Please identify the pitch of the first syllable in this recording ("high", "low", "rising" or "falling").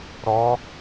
rising